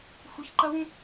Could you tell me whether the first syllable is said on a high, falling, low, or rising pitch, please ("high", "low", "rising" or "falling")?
rising